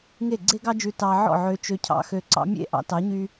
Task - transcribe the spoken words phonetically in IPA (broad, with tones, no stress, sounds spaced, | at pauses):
ŋ e˦˨ ɡ͡ǀ e˦ ɡ ɑ˦ d͡ʒ ʉ˧ t ɑ˧ ʕ ɔ̰˦˨ ʕ ø˧ t͡ʃ ø˧ cʰ ɑ̰˦ x ø˧ ǀ ɑ̰˦ mʲ ḛ˦ ʔ ɑ̰˧ t ɑ˨˦ ɲ y˧